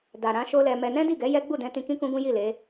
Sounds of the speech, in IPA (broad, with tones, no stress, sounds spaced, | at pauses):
d a˨ ɾ ã˨˦ ʃ o˦ l ɛ˧ m ɛ˧ n ɛ̃˦ d i˦˨ ɡ ɛ˨˦ j ɛ˦ ɡ͡b u˦˨ d ɛ̃˧ t ĩ˧ k ĩ˦ k ũ˦ ɡ ũ˦ j i˦˨ l e˨˦